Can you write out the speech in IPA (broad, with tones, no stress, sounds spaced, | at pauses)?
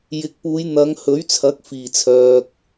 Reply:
j ɪ˨˥ k̚ p uː˨˧ j n̪ ɐ˨˧ ŋ h ɵ˨˥ ɥ t͡sʰ ɐ˨˥ k̚ f iː˨˩ t͡sʰ œː˨ k̚